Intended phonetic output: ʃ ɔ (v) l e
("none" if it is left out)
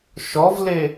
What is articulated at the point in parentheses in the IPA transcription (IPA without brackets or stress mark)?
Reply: v